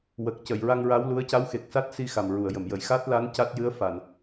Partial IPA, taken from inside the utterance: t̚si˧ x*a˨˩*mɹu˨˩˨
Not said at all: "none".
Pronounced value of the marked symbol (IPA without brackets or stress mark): a˨˩